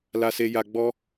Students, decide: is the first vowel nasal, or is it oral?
oral